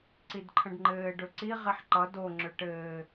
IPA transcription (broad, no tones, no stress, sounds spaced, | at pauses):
ǀ i d ǃʰ ə̃ ɖ ŋ͡ǃ ɘː ɖ ɵ ǀ i ʁ i ħ ǃ ʌ d o ŋ͡ǁ ʏ ʈ ɘː